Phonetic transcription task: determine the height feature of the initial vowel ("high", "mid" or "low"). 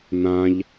low